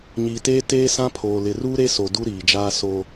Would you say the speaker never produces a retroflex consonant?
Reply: yes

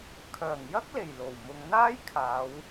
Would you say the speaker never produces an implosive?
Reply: yes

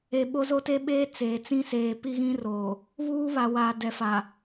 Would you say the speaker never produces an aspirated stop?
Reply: yes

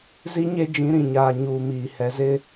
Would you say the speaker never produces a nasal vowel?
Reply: no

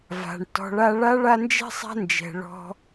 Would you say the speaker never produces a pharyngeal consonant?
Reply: yes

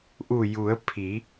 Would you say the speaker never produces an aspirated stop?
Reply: no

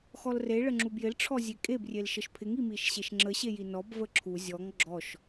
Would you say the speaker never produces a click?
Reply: no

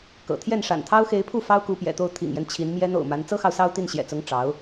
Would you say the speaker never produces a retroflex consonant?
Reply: no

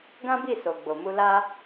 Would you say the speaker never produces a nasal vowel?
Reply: no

